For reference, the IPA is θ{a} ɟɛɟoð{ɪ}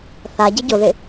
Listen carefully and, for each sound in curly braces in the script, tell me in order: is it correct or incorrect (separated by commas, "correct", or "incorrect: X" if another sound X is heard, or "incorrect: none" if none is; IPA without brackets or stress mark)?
correct, correct